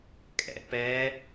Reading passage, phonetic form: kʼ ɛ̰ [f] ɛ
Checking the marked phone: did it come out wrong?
yes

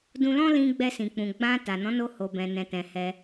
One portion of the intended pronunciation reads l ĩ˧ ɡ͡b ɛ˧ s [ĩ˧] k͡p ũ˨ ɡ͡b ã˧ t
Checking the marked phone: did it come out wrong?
yes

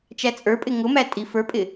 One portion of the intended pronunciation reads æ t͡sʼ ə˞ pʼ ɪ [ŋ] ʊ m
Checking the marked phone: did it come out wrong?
no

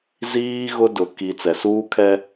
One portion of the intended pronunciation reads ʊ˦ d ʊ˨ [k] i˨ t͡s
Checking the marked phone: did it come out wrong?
no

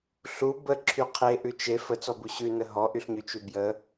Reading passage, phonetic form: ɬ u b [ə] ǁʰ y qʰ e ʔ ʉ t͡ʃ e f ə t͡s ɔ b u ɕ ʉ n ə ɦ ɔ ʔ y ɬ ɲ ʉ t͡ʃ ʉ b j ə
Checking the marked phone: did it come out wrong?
no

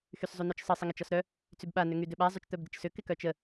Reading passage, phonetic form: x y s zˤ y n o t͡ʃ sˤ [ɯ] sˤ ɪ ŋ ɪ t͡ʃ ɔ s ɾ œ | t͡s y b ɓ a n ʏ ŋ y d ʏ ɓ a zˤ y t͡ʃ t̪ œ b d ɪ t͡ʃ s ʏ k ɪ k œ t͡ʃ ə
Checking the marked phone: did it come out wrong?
yes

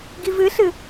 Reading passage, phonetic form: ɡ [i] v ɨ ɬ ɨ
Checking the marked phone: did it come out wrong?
no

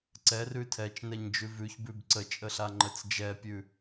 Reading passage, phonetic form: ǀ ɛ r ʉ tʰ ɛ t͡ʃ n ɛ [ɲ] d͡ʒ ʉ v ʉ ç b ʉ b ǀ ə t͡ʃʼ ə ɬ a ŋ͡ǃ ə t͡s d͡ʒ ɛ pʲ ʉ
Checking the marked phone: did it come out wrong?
no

